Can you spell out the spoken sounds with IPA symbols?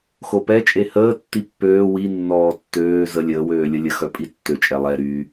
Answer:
x o p ɛ t͡ʃʼ e h əː tː i pː øː w i nː ɔː tː øː z ə lʲ əː w øː lʲ ə lʲ ə x œ pʼ i tː ø t͡ʃʼ ɛ lˠ ɛ ɾ y

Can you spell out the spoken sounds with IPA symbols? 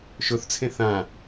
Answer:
ʃ ʊ θ t͡sʰ ẽ θ ã

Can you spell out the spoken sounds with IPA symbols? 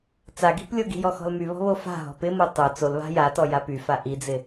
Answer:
t͡s a ɡ i̤ p lʲ o ɡ i̤ j ɔ x ɔ̤ l m y β ɔ̤ β o f a̤ ɦ ɔ̤ p ɪ m o tˤ o t͡s o l β a̤ j a t ɔ j a p y f a ʔ i d͡z ɪ

